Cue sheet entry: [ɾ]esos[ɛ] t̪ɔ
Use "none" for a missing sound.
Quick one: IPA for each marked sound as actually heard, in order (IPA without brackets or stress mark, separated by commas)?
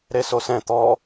ɾ, ɛ̃